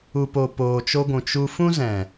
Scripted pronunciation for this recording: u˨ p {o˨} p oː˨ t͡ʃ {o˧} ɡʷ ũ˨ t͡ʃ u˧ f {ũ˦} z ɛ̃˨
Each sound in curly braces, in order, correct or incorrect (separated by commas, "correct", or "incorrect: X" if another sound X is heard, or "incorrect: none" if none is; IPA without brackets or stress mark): correct, correct, correct